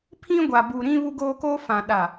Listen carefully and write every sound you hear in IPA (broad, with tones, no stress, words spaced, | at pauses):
pʰĩ˦ɡʷa˨bu˨ ɾĩ˦ βu˦ɡoː˦koː˦ fã˨ ɗa˨